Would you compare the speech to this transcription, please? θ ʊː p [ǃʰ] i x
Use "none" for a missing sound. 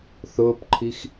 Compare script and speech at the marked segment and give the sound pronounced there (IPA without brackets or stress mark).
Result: ǃʰ